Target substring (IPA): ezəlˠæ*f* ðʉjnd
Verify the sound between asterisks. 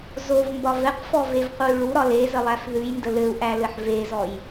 correct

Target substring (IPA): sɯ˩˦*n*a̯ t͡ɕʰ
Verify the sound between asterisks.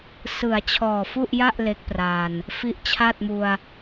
incorrect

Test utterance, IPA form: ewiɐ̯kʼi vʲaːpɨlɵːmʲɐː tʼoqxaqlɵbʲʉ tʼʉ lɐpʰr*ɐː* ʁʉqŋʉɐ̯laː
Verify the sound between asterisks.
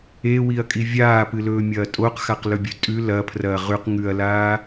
correct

